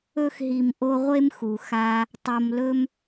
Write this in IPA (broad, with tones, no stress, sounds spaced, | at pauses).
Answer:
ɵ˥ x ɦ i˨ m ʔ o˦ ʁʷ e˥ m x u˩ x a˦ | tˤ o˨ m l ɵ˦ m